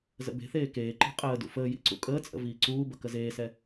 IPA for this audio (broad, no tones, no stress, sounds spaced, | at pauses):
z ə̰ b e̤ θ eː k eː ǃ i̤ qʼ əː d ṵ f əː j ḭ ǀ ṵ kʼ əː t͡sʼ ə̰ v iː ǀ uː b ə k ə z eː s ɛ